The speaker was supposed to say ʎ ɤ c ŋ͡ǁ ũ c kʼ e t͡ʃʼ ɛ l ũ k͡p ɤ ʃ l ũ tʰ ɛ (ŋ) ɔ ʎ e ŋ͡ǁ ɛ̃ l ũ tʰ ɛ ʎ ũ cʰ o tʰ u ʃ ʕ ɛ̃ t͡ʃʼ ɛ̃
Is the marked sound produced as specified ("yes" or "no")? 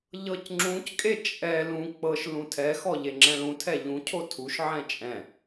no